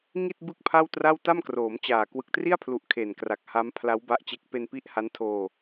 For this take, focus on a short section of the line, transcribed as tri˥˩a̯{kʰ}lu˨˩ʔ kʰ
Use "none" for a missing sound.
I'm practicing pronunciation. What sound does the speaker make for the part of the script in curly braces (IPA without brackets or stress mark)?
pʰ